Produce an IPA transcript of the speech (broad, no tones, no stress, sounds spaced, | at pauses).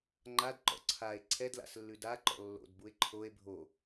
ŋ͡ǃ a d ǃ ɔ̰ ǀʰ a e̯ ǀʰ ɛ d l a̰ s lː ʉ d a ǃ ɔ̰ lː o̰ d b u e̯ ǃʰ o e̯ bʱ o